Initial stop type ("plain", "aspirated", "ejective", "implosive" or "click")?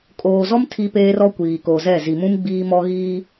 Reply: ejective